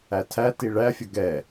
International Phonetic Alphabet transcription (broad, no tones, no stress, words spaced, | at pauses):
ætʰæ tiɭæ fʲʌɡɛ